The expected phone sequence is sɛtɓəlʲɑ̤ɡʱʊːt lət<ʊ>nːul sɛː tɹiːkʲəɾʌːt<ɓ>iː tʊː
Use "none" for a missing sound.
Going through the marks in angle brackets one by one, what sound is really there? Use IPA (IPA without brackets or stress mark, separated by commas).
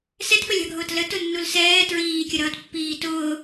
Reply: ʊ, pː